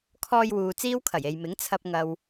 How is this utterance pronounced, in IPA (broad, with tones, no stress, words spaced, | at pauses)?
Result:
kʰɔː˧jwuː˨ t͡siː˥wkʰɐ˨˩je˨jmɪ˨˥ŋ t͡sʰɐ˨p̚ ŋɐ˨w